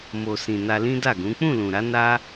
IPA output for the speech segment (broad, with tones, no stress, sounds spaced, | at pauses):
m o˨ s ĩ˨ n a˧ l ĩ˦ d a˦˨ ɡ ũ˨˦ k͡p ũ˦˨ l ũ˨ ɾ a˨˦ n a˦